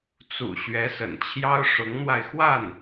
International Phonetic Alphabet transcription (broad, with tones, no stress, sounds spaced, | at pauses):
t͡s ṵ˨˩ ɕ ɥ ɛ˧˥ s ə̰˨˩ n t͡ɕʰ j ɑ˥ ʊ̯ ʂ ʊ˧˥ ŋ n̪ w a˧ ɪ̯ x w a˥˩ n